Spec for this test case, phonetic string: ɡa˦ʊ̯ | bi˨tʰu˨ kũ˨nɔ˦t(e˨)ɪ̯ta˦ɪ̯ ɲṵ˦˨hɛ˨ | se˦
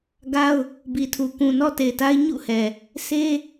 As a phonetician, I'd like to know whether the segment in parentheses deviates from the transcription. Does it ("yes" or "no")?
no